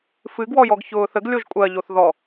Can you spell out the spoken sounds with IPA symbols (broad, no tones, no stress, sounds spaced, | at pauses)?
f ɨ ɡ w ɔ j ɔ ɡ ç ʊː θ ə ɡ lʲ o ʒ kʷʼ ɜ ʎ o θ ð ɔ